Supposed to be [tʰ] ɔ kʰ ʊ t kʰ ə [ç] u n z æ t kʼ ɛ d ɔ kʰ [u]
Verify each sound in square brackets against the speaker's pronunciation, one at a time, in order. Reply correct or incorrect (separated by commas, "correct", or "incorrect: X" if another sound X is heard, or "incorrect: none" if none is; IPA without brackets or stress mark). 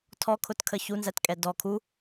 correct, correct, correct